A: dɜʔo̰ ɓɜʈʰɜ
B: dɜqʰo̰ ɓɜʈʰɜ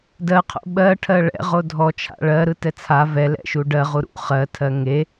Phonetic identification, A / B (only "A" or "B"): B